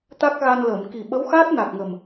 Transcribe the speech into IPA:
t̪a˦˥k̚ɣa˧nləː˨˩˨m ki˨˩ɓə˧˥wxaː˦˥t̚ na˨˩k̚ŋə˨˩m

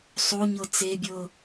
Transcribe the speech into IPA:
sˤoɲɤ t͡sebʲɤ

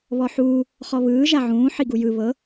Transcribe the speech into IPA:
βɔħuː | χɔβɯː ʒaʕũː ħiɡujɯ βɤ

